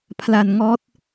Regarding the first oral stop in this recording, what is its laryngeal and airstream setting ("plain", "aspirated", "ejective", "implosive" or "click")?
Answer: aspirated